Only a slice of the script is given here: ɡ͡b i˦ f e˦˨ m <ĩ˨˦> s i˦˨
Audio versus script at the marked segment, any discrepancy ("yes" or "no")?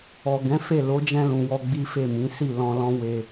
no